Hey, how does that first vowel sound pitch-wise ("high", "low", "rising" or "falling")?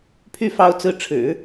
falling